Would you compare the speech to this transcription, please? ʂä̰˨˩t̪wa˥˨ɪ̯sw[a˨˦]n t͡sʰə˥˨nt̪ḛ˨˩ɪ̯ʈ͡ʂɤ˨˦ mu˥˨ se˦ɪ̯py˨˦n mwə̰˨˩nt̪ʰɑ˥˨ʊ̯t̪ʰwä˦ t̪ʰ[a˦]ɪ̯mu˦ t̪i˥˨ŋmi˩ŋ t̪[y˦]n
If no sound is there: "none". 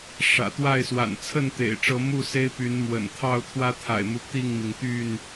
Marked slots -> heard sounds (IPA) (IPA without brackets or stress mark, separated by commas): a̰˨˩, a̰˨˩, y˥˨